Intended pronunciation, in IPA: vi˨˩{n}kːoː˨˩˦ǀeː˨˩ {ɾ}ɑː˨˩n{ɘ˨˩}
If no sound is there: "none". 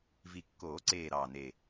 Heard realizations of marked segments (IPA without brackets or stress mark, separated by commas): none, ɾ, e˨˩